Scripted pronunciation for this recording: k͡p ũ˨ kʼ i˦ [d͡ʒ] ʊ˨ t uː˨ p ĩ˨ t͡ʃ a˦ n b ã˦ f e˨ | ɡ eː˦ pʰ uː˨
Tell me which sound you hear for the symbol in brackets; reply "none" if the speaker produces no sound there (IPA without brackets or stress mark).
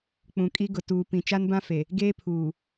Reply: ɡ